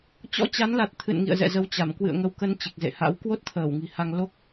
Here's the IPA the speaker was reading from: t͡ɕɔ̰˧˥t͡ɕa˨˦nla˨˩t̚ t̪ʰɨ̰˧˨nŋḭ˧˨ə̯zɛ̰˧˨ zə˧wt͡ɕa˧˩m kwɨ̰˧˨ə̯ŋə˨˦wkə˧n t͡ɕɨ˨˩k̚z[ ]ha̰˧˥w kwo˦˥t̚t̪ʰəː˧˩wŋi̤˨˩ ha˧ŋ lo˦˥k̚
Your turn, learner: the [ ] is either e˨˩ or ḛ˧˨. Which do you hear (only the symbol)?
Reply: ḛ˧˨